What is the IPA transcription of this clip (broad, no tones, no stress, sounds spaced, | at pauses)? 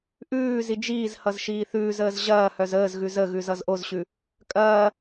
ʔ ʉː z i d͡ʒ iː z h ʌ z ʃ iː θ ʉː z əː z ʑ ɐː h œ z əː z ɣ ʉ z ə ɣ ʉ z ʌ z ʔ o z ɕ ʉ | kʼ ɐː